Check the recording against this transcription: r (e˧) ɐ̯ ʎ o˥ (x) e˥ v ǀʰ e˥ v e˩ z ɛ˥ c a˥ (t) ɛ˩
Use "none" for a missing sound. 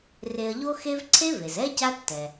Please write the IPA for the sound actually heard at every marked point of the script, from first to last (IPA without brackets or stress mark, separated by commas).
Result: e˧, x, tː